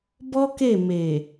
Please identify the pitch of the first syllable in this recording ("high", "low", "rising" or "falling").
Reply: high